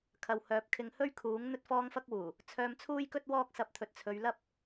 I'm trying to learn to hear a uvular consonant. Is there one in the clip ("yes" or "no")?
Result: no